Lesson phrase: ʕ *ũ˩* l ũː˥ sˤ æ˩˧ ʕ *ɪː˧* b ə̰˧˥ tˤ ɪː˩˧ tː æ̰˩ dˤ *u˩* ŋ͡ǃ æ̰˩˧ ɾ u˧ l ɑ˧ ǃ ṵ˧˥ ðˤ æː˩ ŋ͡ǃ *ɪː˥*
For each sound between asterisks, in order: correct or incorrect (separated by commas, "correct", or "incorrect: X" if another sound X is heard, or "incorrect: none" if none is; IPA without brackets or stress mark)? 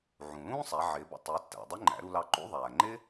correct, incorrect: ɪː˩˧, incorrect: u˧˥, correct